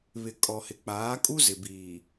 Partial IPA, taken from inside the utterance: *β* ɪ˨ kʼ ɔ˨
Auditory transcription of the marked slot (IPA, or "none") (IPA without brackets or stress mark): β